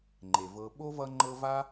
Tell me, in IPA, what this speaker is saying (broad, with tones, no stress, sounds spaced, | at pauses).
ŋ͡ǃ e˩ v ɤ˨ ɓ o˥ v ʌ˦ ŋ͡ǃ ɤ˦ v a˥